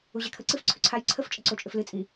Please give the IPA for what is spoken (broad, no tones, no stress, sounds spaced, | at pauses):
u ʑ ɛ kʰ ə ǀ ɨ f ǀʰ ʏ ǀʰ a j ǀʰ ə f t͡ʃʼ ə ǀ o t͡ʃʼ ʏ f l ɨ t͡sʼ i